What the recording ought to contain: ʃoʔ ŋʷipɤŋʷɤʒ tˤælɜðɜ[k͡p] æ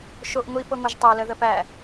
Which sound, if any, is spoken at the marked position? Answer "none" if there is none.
p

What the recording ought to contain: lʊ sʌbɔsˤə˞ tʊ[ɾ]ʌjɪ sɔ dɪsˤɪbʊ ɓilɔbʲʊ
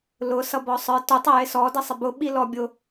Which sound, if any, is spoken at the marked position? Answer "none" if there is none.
tˤ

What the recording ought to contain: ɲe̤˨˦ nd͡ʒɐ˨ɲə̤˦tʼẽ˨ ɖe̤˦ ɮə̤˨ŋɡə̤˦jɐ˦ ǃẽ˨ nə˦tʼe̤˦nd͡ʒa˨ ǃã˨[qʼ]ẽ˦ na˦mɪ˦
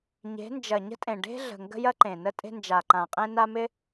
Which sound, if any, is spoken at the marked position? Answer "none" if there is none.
qʼ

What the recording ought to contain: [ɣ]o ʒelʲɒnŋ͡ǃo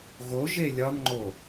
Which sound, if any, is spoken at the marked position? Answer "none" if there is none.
ɣ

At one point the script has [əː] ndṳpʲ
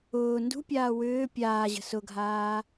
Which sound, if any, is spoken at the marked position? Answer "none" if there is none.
ʊː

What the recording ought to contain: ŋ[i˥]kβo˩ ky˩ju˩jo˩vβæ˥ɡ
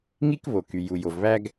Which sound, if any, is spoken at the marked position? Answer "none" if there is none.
i˥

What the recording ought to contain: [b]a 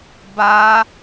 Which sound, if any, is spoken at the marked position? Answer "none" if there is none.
b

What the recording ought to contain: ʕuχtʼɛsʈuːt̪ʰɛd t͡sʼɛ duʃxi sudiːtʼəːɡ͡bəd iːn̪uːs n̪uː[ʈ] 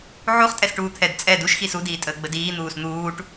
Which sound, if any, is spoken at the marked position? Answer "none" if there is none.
ʈ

